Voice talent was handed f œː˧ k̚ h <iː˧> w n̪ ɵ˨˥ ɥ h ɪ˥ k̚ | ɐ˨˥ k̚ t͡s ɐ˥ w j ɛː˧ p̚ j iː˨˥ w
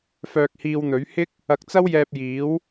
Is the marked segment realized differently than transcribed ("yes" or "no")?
no